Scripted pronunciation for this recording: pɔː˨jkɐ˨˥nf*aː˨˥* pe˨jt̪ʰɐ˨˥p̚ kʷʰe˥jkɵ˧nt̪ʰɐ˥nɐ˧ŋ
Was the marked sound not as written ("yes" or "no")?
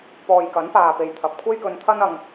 yes